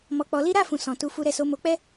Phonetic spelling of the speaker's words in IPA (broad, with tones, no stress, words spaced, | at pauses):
mɔ˧k͡pɔ˧li˦ ɾa˦˨fũ˨sɔ̃˨ tu˧fu˧ɾɛ˧so˧ mo˧k͡pɛ˦